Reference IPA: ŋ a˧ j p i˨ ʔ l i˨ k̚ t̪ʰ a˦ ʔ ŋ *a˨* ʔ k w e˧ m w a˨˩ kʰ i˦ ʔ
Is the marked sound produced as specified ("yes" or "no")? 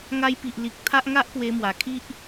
no